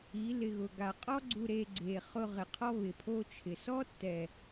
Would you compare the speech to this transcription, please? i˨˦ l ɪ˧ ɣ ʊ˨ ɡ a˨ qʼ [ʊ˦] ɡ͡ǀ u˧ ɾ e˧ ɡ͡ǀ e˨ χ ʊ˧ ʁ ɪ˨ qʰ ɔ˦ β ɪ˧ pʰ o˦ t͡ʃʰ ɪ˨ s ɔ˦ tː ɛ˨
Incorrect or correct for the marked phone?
incorrect: ɔ˦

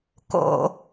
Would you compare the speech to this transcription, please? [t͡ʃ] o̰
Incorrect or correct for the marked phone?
incorrect: k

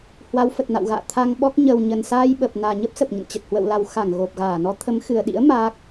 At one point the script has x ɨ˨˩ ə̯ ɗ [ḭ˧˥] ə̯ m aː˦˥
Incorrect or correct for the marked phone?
correct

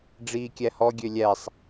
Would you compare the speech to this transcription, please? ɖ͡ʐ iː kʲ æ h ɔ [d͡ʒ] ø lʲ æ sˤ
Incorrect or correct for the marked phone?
incorrect: ɡʲ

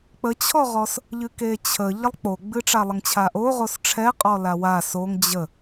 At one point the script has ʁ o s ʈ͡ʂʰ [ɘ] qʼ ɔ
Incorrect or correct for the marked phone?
incorrect: ɛ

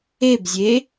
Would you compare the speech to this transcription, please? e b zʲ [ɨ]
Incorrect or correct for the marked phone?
incorrect: e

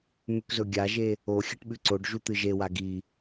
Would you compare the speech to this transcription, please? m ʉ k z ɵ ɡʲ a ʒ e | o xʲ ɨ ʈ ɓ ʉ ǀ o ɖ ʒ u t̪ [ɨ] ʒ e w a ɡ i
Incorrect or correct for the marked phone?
correct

